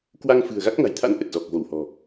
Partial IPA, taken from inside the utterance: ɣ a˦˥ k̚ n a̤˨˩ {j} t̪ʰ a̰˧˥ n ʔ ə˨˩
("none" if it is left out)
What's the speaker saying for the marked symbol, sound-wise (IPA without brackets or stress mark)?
j